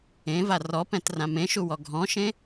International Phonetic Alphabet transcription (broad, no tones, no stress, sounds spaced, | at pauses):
ẽ v a r ɔ p ɛ̃ t r ã m ẽ ʃ u w ɔ ɡʱ ɔ̃ ʃ ẽ